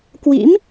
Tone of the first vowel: rising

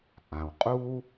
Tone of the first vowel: low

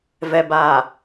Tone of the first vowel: low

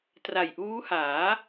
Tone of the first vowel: low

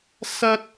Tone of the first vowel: high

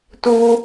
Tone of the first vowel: high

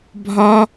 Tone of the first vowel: high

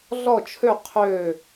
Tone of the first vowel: falling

